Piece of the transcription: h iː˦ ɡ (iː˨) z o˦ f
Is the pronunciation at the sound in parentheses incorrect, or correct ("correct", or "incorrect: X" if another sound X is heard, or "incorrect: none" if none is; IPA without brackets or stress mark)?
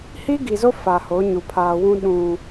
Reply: incorrect: i˨